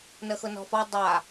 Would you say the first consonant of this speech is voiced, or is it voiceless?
voiced